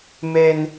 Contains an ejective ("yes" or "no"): no